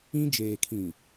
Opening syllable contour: high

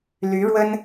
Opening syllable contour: rising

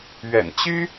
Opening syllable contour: low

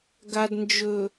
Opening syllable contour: low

